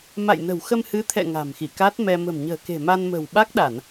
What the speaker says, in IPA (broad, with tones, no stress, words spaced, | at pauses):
ma̰˧˨jnə̤˨˩wxə˧m hɨ˨˦t̪ʰɛ̰˧˨ ŋa̤˨˩m xi˧˩ka˦˥t̚mɛ˧ mə̤˨˩mɲə̤ː˨˩ ke̤˨˩ma˧nmə̤˨˩w ɓa˦˥k̚ɗa˧˩˨n